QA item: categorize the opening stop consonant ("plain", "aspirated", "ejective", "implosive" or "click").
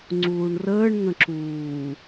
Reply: click